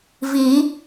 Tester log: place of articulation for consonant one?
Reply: labial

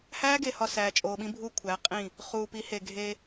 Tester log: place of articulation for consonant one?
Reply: glottal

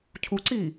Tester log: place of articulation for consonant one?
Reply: palatal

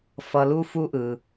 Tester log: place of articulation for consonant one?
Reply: labial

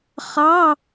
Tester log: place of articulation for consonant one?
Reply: uvular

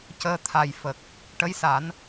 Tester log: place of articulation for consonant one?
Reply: palatal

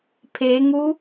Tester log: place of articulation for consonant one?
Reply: labial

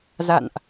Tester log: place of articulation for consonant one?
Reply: alveolar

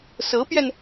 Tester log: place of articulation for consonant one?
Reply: alveolar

